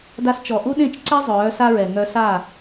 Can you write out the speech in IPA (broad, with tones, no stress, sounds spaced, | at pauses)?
d a˧ s t͡ʃ ɔ˨ ʔ u˦ ɗ ẽ˦˨ t͡ʃ ǀ ɛ˦ zˤ œː˨˦ s a˦ ɹ ɛ˨ ŋ œ˧ s a˦˨